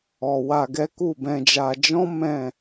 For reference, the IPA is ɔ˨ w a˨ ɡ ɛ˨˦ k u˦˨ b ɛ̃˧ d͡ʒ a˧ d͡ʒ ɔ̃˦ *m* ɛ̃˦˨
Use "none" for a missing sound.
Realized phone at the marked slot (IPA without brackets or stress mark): m